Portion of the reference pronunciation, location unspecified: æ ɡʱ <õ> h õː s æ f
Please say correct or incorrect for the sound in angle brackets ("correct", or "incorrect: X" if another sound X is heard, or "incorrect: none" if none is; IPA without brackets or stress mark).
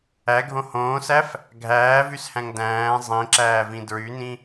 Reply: correct